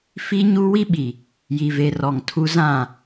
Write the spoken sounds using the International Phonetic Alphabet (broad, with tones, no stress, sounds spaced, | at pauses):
f i˦ ɲ u˦ w i˦ ɓ i˨ | j i˨ v e˨ r ɔ˨ ŋ tʰ u˦ z ã˦˨